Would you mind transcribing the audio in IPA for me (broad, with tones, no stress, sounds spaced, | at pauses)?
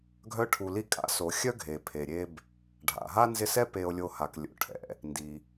ɡʱ œ˦ ʈʰ u˨ l i˦ kʼ a̰˦ s o˩ xʲ œ˦ ɡʱ e˩ pʰ e˩ ɾʲ e˦ b | ɖʱ a̰˩ ɦ a˥ n z ɪ˦ s ɛ˥ p e˨ o̯ lʲ o˨ h a˩ k lʲ o̰˩ ʈʰ ɛ̰˩ | n d i˩